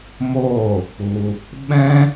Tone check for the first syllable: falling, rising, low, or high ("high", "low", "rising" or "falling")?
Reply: falling